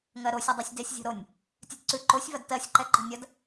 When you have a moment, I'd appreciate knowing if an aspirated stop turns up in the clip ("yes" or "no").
no